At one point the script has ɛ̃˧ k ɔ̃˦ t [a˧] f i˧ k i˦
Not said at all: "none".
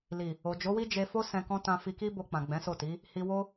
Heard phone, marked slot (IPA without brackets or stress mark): ã˧